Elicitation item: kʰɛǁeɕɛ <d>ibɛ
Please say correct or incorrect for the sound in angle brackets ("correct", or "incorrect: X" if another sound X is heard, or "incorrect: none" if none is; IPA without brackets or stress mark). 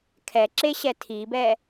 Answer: incorrect: tʰ